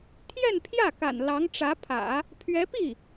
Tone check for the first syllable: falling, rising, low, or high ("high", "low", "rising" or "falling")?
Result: falling